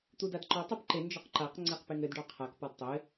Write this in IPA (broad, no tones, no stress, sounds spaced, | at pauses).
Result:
t̪ u d a d ǃ ɔ tˤ a p ǃ e n d͡ʒ ɒ q ǃ a q ŋ͡ǀ e q p e ŋ ɘ d ɖ ɒ qʰ a k p ɒ d tˤ ɘ